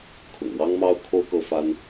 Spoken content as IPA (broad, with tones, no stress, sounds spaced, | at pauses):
kʰ ʊ̰˨˩ ŋ w ɑ˥ ŋ m ɑ˥ ʊ̯ kʰ o˥ ʊ̯ k ɤ˥ f a˥ n